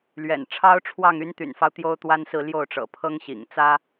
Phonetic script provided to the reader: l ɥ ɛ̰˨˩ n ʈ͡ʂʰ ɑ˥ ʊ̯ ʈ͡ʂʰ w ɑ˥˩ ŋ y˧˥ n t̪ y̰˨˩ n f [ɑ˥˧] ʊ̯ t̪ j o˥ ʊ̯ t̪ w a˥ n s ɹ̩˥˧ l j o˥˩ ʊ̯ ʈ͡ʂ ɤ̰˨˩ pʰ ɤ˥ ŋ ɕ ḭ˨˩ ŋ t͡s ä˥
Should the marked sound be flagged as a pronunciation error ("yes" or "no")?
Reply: yes